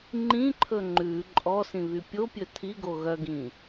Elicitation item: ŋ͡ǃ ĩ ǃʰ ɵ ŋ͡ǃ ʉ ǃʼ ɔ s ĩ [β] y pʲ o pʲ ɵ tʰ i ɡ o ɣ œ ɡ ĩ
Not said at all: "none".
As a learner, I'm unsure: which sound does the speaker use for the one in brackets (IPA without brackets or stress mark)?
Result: β